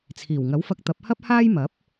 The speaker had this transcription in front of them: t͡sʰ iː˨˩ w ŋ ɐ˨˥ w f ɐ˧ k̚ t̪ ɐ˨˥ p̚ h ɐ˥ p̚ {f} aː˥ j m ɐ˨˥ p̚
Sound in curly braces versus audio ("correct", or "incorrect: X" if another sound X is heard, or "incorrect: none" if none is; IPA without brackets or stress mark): incorrect: h